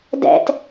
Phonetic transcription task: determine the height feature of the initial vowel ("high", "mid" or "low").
mid